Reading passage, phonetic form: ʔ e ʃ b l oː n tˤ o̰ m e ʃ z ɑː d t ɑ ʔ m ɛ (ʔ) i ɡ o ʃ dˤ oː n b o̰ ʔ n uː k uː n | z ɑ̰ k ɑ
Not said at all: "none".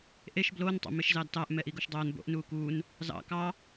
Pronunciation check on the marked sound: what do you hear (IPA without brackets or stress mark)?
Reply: ʔ